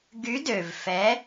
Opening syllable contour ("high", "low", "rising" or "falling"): rising